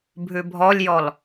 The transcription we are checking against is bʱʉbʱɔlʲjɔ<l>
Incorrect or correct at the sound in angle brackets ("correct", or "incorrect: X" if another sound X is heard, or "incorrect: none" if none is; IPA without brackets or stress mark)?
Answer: correct